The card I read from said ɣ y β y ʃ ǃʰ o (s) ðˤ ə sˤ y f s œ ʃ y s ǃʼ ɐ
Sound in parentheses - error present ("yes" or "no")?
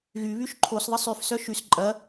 no